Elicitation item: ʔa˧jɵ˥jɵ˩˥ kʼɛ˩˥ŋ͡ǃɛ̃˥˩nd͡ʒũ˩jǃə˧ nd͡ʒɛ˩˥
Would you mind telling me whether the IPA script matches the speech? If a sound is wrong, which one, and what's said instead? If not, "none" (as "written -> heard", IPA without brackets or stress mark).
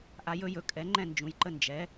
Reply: none